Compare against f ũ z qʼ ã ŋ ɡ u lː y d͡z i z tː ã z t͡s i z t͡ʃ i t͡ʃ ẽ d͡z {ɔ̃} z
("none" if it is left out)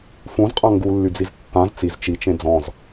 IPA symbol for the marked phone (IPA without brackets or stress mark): ɔ̃